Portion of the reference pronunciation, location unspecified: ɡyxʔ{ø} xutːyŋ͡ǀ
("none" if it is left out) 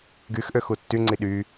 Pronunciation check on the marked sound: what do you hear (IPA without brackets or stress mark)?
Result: ø